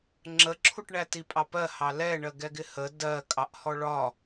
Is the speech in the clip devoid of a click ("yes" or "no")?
no